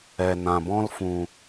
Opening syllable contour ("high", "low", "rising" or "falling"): low